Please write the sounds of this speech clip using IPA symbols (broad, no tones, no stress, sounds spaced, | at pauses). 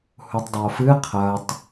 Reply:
h u tˤ dˤ ɵ o̯ f ɨ qʰ ɐ tˤ